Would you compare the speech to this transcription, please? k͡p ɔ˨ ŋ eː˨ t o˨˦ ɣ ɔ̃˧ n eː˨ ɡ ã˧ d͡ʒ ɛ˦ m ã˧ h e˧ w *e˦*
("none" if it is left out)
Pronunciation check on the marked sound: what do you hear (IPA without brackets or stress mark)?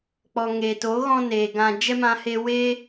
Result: e˦